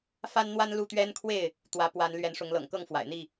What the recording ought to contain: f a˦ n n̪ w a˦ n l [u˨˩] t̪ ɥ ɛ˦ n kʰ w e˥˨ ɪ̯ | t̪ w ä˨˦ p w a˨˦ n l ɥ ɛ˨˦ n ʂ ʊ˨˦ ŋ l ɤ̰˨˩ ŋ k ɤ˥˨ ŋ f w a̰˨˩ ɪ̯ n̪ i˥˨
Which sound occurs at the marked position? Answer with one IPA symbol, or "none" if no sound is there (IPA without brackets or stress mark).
u˥˨